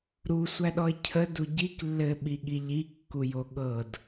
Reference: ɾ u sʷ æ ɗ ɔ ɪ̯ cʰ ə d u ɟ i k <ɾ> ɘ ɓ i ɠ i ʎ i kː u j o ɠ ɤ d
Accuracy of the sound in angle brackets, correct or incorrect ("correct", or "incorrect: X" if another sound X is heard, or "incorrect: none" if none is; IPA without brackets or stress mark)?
incorrect: lː